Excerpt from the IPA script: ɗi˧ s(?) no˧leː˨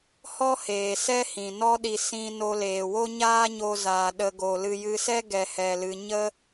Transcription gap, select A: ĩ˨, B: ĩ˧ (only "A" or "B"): B